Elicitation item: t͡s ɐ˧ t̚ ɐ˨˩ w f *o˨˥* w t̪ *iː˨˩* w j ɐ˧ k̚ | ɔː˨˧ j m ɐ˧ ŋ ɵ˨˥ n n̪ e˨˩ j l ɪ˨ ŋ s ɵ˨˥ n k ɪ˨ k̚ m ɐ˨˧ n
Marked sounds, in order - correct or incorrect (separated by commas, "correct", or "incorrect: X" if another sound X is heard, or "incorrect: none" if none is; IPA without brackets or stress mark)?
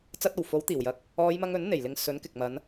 correct, correct